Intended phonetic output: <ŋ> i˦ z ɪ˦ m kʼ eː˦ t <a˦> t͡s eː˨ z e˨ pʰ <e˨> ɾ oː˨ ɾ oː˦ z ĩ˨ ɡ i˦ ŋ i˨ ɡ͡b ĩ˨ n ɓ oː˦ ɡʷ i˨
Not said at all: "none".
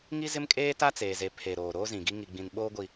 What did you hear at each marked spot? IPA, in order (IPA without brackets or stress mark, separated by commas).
ŋ, a˦, e˨